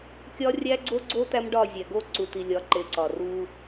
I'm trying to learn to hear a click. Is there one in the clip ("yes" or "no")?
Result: yes